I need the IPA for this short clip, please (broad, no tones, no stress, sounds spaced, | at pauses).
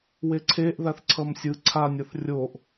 w e ǀʰ e ʔ ð a θ ǀʰ ʌ m sʲ ɯ ǀʰ a nʲ ʌ θ rʲ o ʔ